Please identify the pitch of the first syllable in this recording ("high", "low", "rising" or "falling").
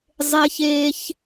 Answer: high